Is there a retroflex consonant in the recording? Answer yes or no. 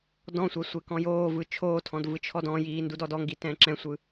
no